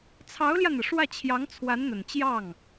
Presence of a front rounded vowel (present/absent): absent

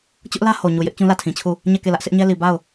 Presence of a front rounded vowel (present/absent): absent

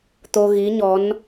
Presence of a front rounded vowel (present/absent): absent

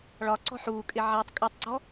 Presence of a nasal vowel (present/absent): absent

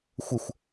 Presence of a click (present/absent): absent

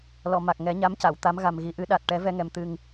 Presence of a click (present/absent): absent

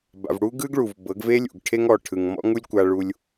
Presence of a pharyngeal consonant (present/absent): absent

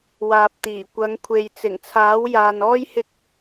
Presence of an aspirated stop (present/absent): present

